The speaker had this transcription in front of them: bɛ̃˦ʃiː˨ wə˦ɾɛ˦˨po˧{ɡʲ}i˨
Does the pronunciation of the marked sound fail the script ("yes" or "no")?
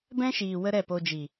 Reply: yes